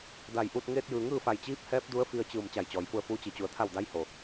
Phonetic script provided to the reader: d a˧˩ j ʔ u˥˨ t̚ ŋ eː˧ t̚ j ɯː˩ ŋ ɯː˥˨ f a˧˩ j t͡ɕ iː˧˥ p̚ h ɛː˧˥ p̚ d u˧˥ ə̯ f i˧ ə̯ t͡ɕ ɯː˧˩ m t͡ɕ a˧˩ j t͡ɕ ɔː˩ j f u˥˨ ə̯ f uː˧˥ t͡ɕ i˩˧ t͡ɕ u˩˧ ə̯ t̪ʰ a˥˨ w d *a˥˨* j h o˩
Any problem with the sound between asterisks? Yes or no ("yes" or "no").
yes